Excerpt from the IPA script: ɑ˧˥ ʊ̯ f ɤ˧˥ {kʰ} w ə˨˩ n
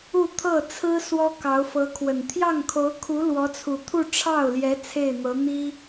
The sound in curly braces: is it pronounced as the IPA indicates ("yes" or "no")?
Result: yes